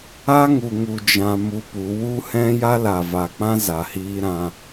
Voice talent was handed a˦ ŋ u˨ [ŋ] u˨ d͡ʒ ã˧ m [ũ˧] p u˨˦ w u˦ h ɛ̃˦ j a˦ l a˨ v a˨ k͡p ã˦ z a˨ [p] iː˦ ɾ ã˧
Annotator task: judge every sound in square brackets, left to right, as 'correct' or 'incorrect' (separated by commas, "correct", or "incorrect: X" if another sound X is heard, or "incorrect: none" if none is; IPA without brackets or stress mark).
correct, incorrect: u˧, incorrect: h